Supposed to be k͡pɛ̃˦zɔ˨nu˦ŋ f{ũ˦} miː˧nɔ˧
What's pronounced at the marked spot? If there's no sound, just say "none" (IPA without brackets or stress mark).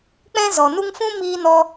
ũ˦